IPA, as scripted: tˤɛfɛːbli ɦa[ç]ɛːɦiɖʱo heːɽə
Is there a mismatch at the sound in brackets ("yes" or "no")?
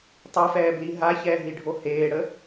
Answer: no